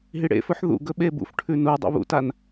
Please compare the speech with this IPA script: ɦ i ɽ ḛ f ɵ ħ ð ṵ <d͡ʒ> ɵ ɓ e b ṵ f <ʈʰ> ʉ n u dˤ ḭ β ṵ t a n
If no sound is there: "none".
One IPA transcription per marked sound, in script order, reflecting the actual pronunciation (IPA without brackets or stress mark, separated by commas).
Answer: ɡ, ʈʰ